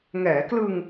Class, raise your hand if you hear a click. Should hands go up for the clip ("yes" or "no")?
no